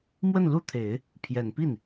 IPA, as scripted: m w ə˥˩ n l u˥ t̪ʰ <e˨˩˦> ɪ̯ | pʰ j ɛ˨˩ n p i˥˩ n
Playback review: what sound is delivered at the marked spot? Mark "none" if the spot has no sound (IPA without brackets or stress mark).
e˨˩˦